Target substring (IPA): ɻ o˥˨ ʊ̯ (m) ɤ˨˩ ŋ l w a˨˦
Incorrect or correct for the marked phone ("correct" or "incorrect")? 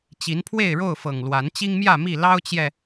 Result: incorrect